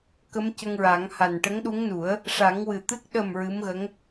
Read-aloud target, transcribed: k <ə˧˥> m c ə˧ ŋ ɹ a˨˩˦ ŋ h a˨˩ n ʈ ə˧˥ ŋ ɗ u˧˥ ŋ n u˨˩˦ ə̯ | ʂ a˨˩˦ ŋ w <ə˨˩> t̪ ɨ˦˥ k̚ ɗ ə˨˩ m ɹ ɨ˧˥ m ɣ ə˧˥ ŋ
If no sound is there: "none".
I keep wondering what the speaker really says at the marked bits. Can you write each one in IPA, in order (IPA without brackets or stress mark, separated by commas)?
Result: ə˧˥, ɨ˨˩